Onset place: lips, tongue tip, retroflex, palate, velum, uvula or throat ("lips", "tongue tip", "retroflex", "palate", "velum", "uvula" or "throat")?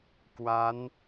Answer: velum